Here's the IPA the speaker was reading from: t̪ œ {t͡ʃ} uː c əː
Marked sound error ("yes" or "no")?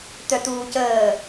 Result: yes